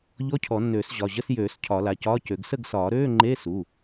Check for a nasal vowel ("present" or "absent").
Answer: absent